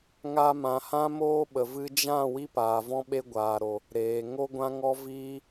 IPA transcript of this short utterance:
ŋ a˧ m ã˨ h ã˦ m oː˦ ɓ ə˨ v ɨ˧ d͡ʒ ã˦˨ w i˦ p aː˨ v ɔ̃˦ ɓ e˦ ɡʷ aː˨ ɾ o˨ | ɾ eː˨ ŋ o˦ ɡʷ ã˦ ŋ ɔ˦ v iː˦

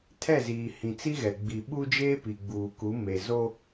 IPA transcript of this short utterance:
tʰ ɛ˦˨ z iː˨ h ĩ˨ t͡s i˦ ɣ ɛ˨ ɡ͡b i˨ ɓ u˦ d͡ʒ eː˦ p i˨ ɡ͡b uː˨ k u˨˦ m e˨ z o˦

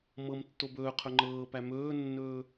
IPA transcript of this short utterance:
m ɤ m tː o b ɵː qʰ ɵ ŋ͡ǃ ɤː p æ m ɵː nː ɵː

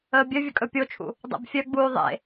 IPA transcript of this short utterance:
əː bʲ œ vʲ ə kʼ ɵ pʲ o t͡ʃʰ ṵ | dˤ ḛ b fʲ œ ɡ͡b uː ðˤ ḛ

